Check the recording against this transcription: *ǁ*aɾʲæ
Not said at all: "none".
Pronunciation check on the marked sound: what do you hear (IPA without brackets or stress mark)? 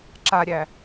ǁ